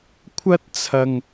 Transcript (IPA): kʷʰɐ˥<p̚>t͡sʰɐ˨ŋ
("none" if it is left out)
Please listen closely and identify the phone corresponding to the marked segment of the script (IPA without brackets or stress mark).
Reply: t̚